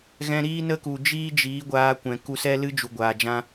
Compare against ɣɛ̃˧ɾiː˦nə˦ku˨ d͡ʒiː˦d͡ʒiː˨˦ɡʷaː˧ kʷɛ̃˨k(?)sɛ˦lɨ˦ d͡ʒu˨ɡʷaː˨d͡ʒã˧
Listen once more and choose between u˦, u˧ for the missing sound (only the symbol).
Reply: u˧